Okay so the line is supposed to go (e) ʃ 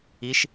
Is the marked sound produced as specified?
no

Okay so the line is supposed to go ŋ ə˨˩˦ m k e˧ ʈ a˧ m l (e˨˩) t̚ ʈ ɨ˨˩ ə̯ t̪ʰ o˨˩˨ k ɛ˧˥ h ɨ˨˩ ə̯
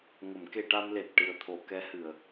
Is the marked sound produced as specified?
yes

